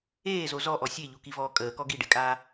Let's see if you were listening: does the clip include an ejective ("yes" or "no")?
yes